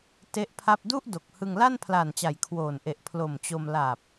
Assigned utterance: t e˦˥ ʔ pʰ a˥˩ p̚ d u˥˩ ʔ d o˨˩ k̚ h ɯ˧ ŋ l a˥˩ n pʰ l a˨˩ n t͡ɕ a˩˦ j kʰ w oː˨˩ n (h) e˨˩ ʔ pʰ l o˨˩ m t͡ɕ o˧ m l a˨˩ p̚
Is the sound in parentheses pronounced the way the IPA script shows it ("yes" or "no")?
no